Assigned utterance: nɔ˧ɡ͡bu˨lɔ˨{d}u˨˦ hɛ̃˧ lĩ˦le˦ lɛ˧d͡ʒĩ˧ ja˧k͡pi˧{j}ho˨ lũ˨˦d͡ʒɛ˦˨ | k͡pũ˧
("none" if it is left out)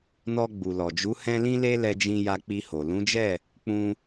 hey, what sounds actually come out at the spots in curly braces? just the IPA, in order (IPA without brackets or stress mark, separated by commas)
d͡ʒ, none